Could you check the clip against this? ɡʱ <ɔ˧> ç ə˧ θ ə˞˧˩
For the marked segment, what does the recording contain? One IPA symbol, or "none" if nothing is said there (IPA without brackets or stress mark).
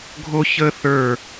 o˧